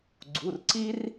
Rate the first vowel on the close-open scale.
close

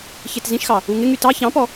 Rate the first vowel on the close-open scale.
mid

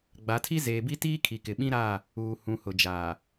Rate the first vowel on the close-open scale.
open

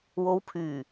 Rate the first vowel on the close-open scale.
mid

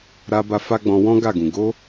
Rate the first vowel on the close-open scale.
open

